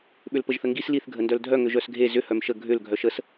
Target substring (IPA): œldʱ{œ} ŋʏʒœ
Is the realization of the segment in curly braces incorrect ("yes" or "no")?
no